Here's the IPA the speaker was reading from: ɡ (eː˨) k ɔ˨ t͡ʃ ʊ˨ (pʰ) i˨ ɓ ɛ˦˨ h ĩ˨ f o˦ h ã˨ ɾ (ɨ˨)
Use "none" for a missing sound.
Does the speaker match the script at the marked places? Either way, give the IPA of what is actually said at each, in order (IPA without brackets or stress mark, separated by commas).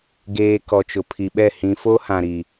eː˨, pʰ, i˨